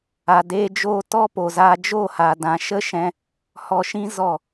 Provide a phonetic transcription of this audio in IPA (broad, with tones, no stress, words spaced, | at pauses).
a˧deː˦d͡ʒoː˦ tɔ˦po˨za˧ d͡ʒo˦˨ha˨dã˨ʃə˦ ʃɛ̃˧ | hɔ˧ʃĩ˦ zɔ˦˨